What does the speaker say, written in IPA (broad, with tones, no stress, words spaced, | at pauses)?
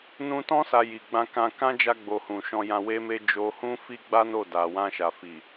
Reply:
nũ˧tɔ̃˦ sa˧ji˨ɡ͡bã˧kã˧ kã˦d͡ʒa˧ɡ͡bo˨ hũ˨ʃɔ̃˧ jã˧we˦me˦ d͡ʒo˧hũ˦fi˦ɡ͡ba˦ no˦˨ da˨wã˧ʃa˨ fi˨